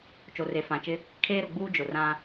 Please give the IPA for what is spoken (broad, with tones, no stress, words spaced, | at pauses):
t͡ʃo˨re˨fã˨t͡ʃɪ˦ | kʰeː˦ɾʊ˨ɡ͡buː˦ d͡ʒʊ˨rã˦